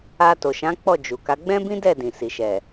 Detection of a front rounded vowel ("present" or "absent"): absent